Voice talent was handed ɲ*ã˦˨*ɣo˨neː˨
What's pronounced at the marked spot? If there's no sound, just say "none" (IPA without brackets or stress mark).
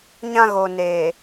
ã˦